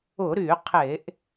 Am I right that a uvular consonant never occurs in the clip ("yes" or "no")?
no